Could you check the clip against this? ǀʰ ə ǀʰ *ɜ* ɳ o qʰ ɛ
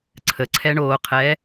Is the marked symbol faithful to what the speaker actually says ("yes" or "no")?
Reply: no